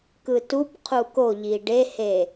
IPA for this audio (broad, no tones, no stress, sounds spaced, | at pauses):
k ɯ t u p qʰ u k o ʎ i ɖ e h e